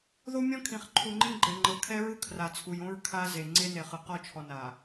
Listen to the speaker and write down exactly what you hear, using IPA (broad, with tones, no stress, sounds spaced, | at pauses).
ð o˦ mʲ ɔ̃˦ kʰ ĩ˨ χ ǃʰ u˨ ŋ͡ǃ ĩ˦ ɡ͡ǃ ɛ˨ ŋ͡ǃ ɤ˨ kʰ ɛ˦ ɹ ɯ˦ kʰ r a˨ t͡sʰ u˨ j õ˦ ɹ kʰ a˦ z e˨ ŋ͡ǀ e˦ n e˨ χ ɯ˨ q ɔ˦˨ t͡ʃʰ ɔ˨ n a˨